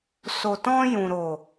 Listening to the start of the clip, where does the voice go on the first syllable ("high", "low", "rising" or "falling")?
low